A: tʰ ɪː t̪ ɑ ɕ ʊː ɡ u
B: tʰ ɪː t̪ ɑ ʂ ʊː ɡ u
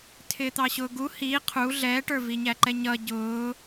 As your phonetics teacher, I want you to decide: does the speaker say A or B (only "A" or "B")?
A